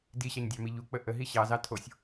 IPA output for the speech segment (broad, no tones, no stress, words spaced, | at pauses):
diɕɑɲdʲɑmi ʎuk͡pə ʔəɦi ɕɑzɑ tʰosʲ